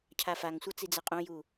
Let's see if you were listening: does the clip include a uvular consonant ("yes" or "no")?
yes